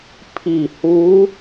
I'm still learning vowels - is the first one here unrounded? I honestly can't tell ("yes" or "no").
yes